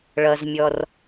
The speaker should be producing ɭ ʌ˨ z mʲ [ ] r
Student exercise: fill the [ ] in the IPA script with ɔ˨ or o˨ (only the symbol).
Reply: ɔ˨